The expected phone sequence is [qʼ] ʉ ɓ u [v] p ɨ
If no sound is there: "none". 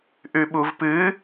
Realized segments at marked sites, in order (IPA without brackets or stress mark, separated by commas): ʔ, v